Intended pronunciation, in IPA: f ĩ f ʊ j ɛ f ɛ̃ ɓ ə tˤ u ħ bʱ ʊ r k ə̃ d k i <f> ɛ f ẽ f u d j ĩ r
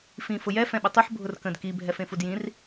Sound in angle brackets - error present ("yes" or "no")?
yes